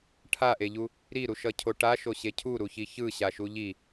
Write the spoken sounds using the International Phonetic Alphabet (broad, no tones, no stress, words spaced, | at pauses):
ʈʰaʔeʎu | ɾiɾuʃʌcʰo ʈaʃoɕe cʰuɾuçi çɯɕaʃu ʎi